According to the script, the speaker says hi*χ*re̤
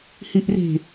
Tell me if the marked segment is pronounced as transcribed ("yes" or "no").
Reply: no